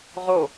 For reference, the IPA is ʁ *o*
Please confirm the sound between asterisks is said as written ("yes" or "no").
yes